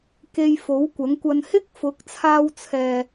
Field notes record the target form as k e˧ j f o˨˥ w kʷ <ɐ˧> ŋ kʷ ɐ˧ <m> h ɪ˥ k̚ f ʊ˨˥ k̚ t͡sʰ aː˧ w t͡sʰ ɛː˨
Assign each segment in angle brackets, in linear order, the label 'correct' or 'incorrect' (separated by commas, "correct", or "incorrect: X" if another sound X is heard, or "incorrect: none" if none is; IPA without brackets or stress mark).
incorrect: ɐ˨˥, incorrect: n